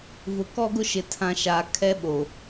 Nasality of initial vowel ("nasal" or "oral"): oral